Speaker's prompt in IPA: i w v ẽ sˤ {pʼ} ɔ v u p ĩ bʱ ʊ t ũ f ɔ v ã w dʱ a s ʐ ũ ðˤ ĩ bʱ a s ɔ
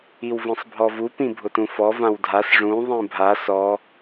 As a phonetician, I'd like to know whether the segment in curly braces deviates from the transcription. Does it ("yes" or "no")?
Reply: yes